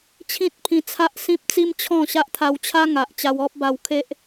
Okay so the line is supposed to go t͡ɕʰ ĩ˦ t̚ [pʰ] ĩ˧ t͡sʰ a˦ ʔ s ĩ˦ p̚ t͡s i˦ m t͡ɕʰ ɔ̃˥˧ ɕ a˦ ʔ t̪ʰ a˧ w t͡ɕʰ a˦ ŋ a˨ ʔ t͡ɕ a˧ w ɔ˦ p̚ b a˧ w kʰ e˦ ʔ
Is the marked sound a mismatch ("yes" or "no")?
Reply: no